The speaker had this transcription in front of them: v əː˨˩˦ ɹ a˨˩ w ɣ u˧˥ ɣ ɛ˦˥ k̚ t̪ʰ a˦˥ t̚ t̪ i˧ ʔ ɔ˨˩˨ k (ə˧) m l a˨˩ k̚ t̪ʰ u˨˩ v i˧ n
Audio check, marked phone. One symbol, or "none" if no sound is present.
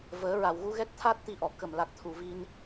ə˨˩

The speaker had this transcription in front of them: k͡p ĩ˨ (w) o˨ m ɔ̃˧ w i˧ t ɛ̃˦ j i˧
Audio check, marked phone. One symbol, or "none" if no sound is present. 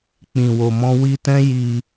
w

